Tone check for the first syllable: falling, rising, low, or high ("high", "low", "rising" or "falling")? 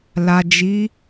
low